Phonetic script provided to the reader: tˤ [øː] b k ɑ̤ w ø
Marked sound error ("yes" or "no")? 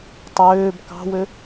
no